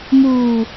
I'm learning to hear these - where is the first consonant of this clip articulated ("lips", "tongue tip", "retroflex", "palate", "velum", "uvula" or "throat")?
lips